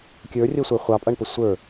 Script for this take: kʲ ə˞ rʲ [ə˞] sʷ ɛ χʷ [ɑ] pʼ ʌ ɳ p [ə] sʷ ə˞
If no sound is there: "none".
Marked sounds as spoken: ʌ, ɑ, ə

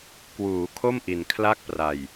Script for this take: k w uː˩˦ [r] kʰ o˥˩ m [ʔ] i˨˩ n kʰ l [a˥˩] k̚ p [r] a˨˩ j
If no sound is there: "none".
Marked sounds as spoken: none, ʔ, a˥˩, r

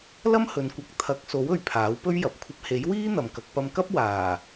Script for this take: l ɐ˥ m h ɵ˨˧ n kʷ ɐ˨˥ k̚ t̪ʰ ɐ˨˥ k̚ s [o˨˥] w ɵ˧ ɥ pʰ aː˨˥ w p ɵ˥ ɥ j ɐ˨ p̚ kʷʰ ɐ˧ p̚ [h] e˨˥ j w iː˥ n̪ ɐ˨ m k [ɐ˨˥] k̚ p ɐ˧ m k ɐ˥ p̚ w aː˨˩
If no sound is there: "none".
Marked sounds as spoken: o˨˥, h, ɐ˨˥

